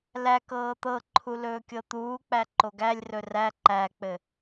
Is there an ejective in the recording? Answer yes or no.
no